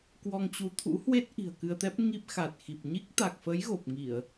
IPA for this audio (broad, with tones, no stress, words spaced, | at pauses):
kwɔ˧ŋt͡ɕu˨˦t̪ʰṵ˧˥hwe˦˥t̚ ʔi̤˨˩ə̯kɨ˧ə̯t̪ɛ˦˥p̚ ŋi˦˥p̚xa˨˩t̚xi˨˩p̚ ɲi˦˥k̚t̪a˨˩k̚fə˨˦j ɣo˨˩p̚ŋi˧˩˨ə̯